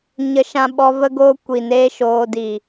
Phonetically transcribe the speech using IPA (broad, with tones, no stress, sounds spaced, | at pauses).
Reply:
ɲ ə˧ ʃ ã˧ ɓ ɔ˧ v ə˦ ɡ oː˦ kʷ i˨ n eː˦ ʃ oː˧ d iː˨